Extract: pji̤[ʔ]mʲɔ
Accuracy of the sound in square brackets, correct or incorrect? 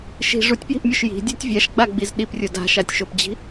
correct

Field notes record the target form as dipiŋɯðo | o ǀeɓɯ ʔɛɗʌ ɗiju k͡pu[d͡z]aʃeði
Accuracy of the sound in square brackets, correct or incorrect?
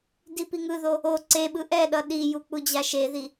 incorrect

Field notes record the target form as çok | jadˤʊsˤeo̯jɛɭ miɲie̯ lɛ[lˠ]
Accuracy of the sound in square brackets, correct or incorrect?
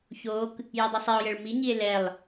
correct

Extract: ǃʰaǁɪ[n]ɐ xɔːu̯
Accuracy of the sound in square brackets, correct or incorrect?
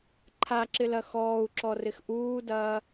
incorrect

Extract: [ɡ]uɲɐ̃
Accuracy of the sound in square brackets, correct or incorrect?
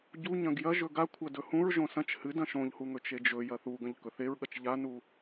incorrect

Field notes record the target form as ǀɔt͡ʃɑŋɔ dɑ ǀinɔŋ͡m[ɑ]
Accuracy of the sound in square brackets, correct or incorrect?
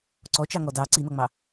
correct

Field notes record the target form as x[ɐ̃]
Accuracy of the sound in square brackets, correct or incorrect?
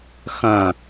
correct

